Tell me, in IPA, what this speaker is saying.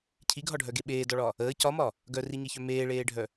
cʰiɡʱɒɖʱœɡe ɓeːdɒɭɒ | əː cɒmɒ | ɡœriɲeçœ meːɭeːɖʱœ

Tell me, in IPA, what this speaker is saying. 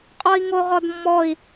qʼɔi̯ŋoʁɔdmːɔi̯

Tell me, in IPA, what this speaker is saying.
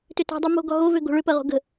tʏtɔ̤dˤu mo̤ɡɔ ɦovø ɡo̤ɭʏpɜʁo̤ ɡə̤

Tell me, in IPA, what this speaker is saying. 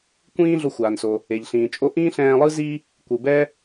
kʷĩː˥ɮo˧xʷaː˩nso˩ | e˩ʎɬĩː˩t͡ʃʼo˥ ʔĩː˥ɬɛ̃ː˧lˠɯ˥ zi˥ | kʷɯ˩bɛ˥

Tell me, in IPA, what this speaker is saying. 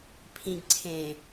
pʰĩɡ ǀʰẽ

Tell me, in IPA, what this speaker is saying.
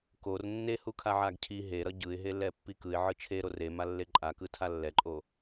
kor nːehukʰaʕaɡ cʰi ɦeɾʌ ɟɯɪ̯ɦelːɛpːi kɯɪ̯ʕɯ t͡ʃʰeɾo remalːe ǃʼakɯtʰa lːɛǃʼo

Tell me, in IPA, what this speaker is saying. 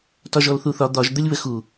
tɒʒɔlθuθɒ d̪ɒʒ d̪əlʲβəxu

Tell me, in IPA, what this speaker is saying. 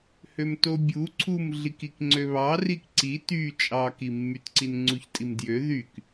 hømtobʲu ǀʰum ɮikikŋ͡ǀøβɑ rikǀi ty t͡ʃʼɑkimːytǀin ŋ͡ǀuçtʼimdjø ðyk

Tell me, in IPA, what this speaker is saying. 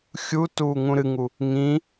xʲu tuːŋũɾɨŋu | ŋĩ

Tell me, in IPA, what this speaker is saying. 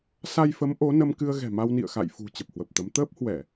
sa˧jfə˨˦m ʔo˨˦nə˧m kɨ˧ə̯ɣɛ̤˨˩ma˧wnḭ˧˨ə̯ xa̰˧˨jfṳ˨˩ t͡ɕə˨˩p̚hwə˨˩p̚t̪ə˨˦m t̪əː˦˥p̚hwɛ˧˩˨

